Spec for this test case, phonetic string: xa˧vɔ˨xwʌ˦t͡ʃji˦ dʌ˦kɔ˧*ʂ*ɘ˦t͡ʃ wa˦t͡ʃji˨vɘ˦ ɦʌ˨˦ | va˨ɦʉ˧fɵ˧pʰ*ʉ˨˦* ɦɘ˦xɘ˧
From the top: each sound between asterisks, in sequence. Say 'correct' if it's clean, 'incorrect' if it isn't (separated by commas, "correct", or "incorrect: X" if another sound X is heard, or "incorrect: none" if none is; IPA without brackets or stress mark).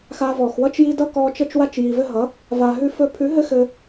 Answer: incorrect: t͡ʃ, correct